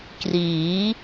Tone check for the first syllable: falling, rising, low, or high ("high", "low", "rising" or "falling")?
rising